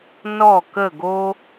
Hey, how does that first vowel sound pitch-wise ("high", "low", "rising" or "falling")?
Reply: falling